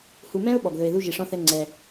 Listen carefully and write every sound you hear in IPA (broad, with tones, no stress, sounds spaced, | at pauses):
h u˧ m ɛ̃˥ ʊ̯ ɓ ɔ˧ ɡ ð ɵ˧ ɪ̯ ð u˥ ʒ i˧ ʂ ɔ̃˥ θ ɛ˥ ŋ͡ǀ ɛ˧